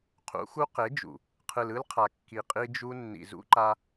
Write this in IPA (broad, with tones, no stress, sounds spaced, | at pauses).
qʰ ṵ˨˦ x u˦ q e˨˦ d͡ʒ ṵ˨ | qʰ ɯ˨ l ɯ˦ l qʰ a˨ kː i˨ qʼ i˦ d͡ʒ u˦ nː ḭ˨ z ṵ˦ ǃ a˦